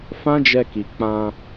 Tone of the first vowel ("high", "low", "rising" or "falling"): high